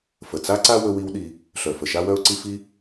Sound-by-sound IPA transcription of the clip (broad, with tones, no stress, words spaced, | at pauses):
fə˨t͡sa˦ǀa˦ wɵ˦wi˦wɗi˧ | ɬœ˨fə˨ ʃa˦wœ˦ʊ̯ǀi˦ fi˦